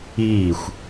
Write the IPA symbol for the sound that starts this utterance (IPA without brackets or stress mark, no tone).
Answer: iː